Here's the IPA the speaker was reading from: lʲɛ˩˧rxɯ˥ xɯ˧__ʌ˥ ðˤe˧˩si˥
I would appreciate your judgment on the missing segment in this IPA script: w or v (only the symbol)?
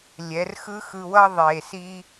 w